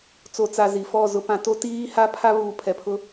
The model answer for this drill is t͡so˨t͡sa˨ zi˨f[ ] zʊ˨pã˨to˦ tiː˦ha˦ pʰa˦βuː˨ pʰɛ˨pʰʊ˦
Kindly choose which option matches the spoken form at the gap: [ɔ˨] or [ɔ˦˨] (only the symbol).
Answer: ɔ˦˨